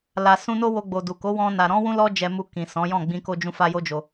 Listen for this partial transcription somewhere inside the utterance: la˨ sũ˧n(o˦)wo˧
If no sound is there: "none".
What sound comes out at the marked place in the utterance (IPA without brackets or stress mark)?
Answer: o˦